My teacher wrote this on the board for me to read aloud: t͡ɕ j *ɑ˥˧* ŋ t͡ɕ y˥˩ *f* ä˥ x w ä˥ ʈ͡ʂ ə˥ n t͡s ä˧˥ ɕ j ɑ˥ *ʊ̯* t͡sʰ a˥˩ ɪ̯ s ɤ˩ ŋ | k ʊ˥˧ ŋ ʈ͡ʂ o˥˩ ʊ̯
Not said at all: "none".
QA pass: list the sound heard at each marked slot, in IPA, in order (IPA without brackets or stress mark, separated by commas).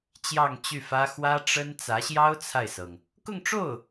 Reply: ɑ˥˧, f, ʊ̯